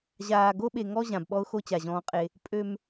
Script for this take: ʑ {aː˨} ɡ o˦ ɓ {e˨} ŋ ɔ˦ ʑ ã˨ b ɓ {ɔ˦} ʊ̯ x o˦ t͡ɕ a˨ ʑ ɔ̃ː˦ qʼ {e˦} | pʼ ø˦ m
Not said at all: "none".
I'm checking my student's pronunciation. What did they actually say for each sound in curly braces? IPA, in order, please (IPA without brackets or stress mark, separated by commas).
aː˨, e˨, ɔ˦, e˦